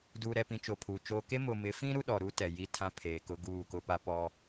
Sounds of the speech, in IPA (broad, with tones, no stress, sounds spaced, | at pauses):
d uː˨ ɾ ɛ˨ p ĩ˨ t͡ʃ o˨ pʰ uː˨ t͡ʃ oː˦ k e˦ m ʊ˨ m ɪ˨˦ f ĩ˦ ɾ u˦ ɗ ɔ˨ ɾ u˦ t ɛ˨ j i˦ tʰ ã˦ pʰ eː˨ k ʊ˦ ɡ uː˦˨ k ʊ˦ p a˦ p ɔ˦